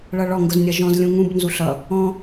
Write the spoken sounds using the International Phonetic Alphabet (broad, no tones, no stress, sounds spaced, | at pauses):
ɭ ʌ ɭ ɔ ŋ ɡ ʊ z nʲ ʌ ʒ ɔ̃ z lʲ ũ ŋ ũ b n z u ɬ ʌ | ɔ̃